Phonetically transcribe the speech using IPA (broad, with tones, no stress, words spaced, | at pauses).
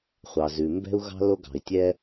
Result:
χʷɑ˩zʉ˩ mbɛ̤˥u̯ɣɑ̤˥ lo˥ɡɑ̤˩i̯tʲɛ˥